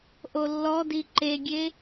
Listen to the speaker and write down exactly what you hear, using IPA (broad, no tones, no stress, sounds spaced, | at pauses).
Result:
ʔ o lː ɔ d i ǃ e ɡʲ e